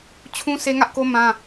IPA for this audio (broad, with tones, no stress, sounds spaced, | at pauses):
t͡ɕʰ ũ˦ s e˦ ŋ ä˦ ʔ k o˦ m ã˦